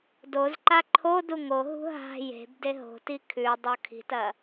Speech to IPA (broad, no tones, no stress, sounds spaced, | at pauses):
d o z ǃ a ǃʰ o d u ŋ o ɦ ṳ ɦ a̤ j e̤ b d e ɦ o̤ t i kʰ ʉ dˤ o kʰ i̤ t ɐ